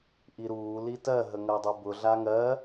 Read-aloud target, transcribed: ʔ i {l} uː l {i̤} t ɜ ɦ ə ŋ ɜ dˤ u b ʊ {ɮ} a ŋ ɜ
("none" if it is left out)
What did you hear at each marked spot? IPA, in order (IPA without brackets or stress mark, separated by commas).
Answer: ɾ, i, ɮ